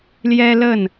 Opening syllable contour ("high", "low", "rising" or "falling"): high